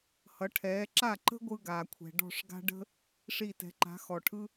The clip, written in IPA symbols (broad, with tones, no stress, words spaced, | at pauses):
hʌ˩˥ʈʰɛː˩˥ ǁa˥˩ǃə̤˥ ɡʷɯ˥ɡaː˩kʷʰɛ̤˩ ɖɔ̤˥˩ʂɡa̤˥ ɖə̤˥ | ʂi˥˩tɛ̤˩˥ ǃa̤˩˥xɔ˩ʈʰɯ˥